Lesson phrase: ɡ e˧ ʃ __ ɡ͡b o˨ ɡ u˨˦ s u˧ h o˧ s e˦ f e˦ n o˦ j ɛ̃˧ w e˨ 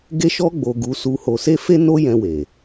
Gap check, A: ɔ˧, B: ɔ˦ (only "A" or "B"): A